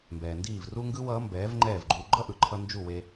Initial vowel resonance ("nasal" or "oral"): oral